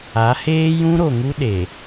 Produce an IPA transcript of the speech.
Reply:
a˨˦ h eː˦ j ũ˦ ɾ o˨ ŋ u˦ ɗ e˨

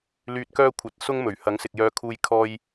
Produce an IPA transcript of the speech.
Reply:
l yː˧ t̚ k œː˥ kʷʰ ɐ˨˥ t̚ s ʊ˥ ŋ m ɵ˨˩ ɥ h ɐ˨˥ ŋ s ɪ˨ k̚ j œː˧ kʰ uː˧ j kʰ ɔː˥ j

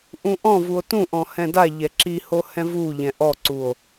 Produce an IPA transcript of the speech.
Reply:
ʔ ũ ʔ ɔ̃ v u o̯ t ũ ʔ ɔ̃ h ɛ̃ d a ʎ ɛ ǁ i h o h ɛ̃ v u ʎ ɛ̃ ʔ ɔ ǀ u o̯

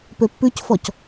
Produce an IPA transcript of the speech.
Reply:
p ø pː ʉ c f ɔ c

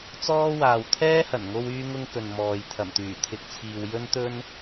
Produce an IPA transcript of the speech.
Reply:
t͡s ɔː˥ w aː˨ w t̪ʰ ɛː˥ h ɐ˨˩ n ŋ o˧ w yː˥ ŋ ʊ˥ ŋ k ɵ˨ n m ɔː˨ j t̪ʰ ɐ˨˩ m t̪ yː˨˩ t̪ʰ ɪ˨ k̚ t͡sʰ iː˨ w j ɵ˥ n t̪ ɵ˥ n

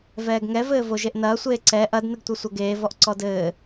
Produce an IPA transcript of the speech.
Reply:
v ɛː ɡ ŋ ɛ v ɘː v o ʒ e ʔ n ɐː sʷ eː ǀ ɛ ʔ ɐ d n ɨ ɡ tʷ ɐ sʷ ɐ ɡ eː v ɔ ʔ ǀ ɔ d ɘː

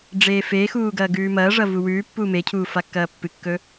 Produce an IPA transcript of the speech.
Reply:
ɖ͡ʐ eː f eː x uː ɡ ɐː ɡ ʉː m ɐː ʐ ɐ v u w ʉː pː uː m e cʰ uː f a kː ɐː pː ɨ kː ɵ

